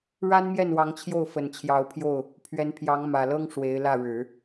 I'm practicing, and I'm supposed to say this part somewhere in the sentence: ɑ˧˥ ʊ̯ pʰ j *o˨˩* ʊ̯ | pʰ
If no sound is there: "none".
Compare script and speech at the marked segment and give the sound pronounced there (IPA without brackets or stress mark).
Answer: o˥˩